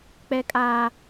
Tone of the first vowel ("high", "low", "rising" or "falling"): high